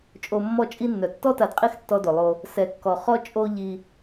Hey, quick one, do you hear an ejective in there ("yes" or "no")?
yes